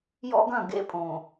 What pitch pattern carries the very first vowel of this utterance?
high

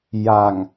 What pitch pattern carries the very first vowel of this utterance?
low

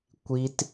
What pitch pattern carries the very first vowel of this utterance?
high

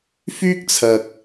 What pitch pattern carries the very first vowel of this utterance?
high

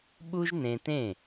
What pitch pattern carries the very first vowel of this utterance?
high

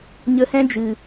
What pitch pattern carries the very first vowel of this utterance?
low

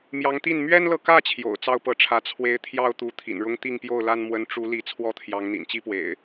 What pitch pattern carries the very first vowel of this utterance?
rising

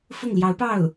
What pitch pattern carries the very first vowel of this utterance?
falling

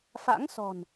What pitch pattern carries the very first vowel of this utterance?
rising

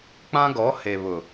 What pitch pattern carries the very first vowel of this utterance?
high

